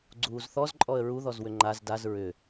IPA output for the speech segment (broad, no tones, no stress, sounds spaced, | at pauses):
ɡ͡ǀ uː z θ ɔ z ǃʼ ɔ ə̯ ɹ u ð ɔ z w ʏ ŋ͡ǃ a z d a z ɹ ʏ